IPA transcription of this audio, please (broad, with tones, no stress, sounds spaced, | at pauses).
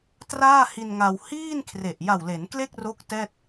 t r aː˥˩ h i˧ n ŋ a˧ w h iː˥˩ n kʰ r e˨˩ ʔ j a˨˩ w l e˩˦ n k l e˥˩ k̚ r o˦˥ k̚ t ɛː˥˩ t̚